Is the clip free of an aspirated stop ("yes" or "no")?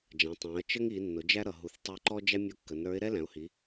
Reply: yes